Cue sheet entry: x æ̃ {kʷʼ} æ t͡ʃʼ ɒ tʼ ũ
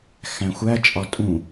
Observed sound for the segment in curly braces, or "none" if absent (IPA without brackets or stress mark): xʷ